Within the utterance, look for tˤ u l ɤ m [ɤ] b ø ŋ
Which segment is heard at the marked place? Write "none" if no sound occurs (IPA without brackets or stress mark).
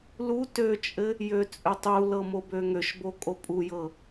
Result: o